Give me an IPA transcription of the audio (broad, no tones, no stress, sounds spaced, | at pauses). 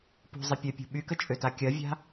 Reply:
p ṳ zˤ ɪ pʲ œ pʲ ṳ ɓ y k ə t͡ʃʼ ø t a kʲ ɐ vʲ a̤